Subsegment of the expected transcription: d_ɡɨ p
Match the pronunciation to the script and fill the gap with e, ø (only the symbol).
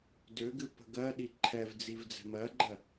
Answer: ø